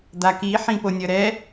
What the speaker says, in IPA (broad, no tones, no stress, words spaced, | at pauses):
d̪aki ħĩponʲʌɾɛ